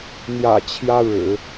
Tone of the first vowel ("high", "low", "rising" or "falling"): low